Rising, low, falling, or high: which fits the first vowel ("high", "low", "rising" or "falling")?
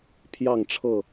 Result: falling